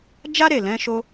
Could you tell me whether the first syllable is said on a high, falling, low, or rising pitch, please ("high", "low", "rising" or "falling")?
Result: high